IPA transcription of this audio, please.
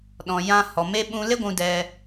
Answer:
ɗɔ̃˨ jã˧ hɔ˨me˧ ɓũ˧le˦ɡʷũ˧ dɛ˧

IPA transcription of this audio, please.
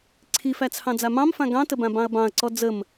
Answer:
ǀʰifæt͡sʰɑ̃ d͡zamɑ̃mfã ɡɑ̃təbã bɑ̃ɐ̯bɑ̃ɐ̯ǀɔ d͡zəm

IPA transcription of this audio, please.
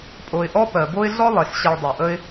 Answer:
pʼo˩ɪ̯ʔɔ˦ pɜ˩bo˥ɪ̯ ɮɔ˥ lˠe˩ɬɕe˨ɭ dˤo˩ʔə˦ɪ̯

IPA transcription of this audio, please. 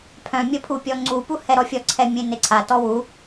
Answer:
pʰœ̃mʲə pʰupʲɔŋ͡ǀupu hɛɾɔfʲɔǀʰɛ mʲẽneǀʰatɔ wu

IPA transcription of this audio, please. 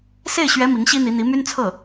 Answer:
se˥˩ɪ̯ɕɥɛ˧˥ mi˧˥ŋɕi˥n̪i˧˥n̪i˧˥ my˥nt͡sʰɤ˥˩

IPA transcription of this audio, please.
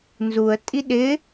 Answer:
nzuə̯ tʼiɗɪ

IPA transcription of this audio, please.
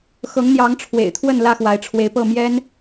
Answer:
xɤ˨˦ŋn̪jɑ˨˦ŋ ʈ͡ʂʰwḛ˨˩ɪ̯t̪ʰwə˥˨nlä˥˨ xwa˨˦ɪ̯ʈ͡ʂʰwe˨˦ɪ̯pɤ˥˨ mjɛ˦n

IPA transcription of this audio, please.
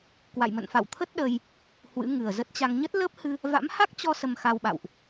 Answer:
kwa̰˧˨jmə̰˧˨nfa̰˧˨wt̪ʰə˦˥t̚ ɗə˧j | hwɨ̰˧˥ŋɨ˨˩ə̯zə˦˥t̚t͡ɕa˧ŋ ɲə˦˥t̚ləː˦˥p̚hɨ˧ | va̰˧˥mha˦˥k̚t͡ɕɔ˧ sə˧mxa˧wɓa̰˧˨wʔ

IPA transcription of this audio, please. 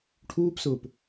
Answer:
ʈʰuːpsʊːp

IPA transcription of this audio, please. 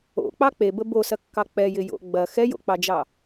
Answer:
o̰k͡pɑ k͡pebə bosɐkːɑ k͡pɛjɪjo̰ ɡ͡bɐ xɛjo̰k͡pɑd͡ʒɑ

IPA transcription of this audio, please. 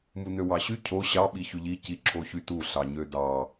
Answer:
munøwɑɕy cʰo ɕɑ ɓiçyʎi ciǁʰoçytu ɬɑɲødɑ

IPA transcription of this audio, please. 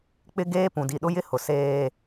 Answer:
k͡pɪ˦ɡeː˦ pũ˨di˨ɗʊ˦jɪ˦ hʊ˨ seː˦

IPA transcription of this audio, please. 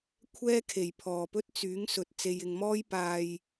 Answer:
kʷʰɛː˥kʰe˨˩jpʰɔː˨˩pɵ˥t̚ t͡syː˨˥ŋsɵ˨t̚ t͡se˨jɪ˨ŋmɔː˥j paː˧j

